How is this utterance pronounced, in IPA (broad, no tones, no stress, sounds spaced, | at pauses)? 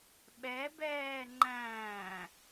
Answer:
ɓ ɛ b ɛː ŋ͡ǃ æ̃ː